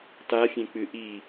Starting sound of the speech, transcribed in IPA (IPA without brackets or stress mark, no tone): t